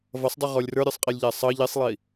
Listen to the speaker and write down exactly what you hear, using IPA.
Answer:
vʌsˤdˤuʁɔlʲ rə˞ɾʲə˞sˤqʼilʲʎæ sˤʌ ʎisˤlˠi

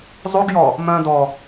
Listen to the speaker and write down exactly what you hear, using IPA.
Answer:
zˤuɡjɔ | mœ̃dɔ

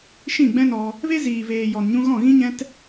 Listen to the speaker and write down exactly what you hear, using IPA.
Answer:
ʃĩ˦˨ɡ͡bɛ̃˦nɔ˧ | ve˦ ziː˨veː˨ jɔ˨nɲũ˧ ɣɔ̃˦˨ɣĩ˦ɲɛ̃˦t

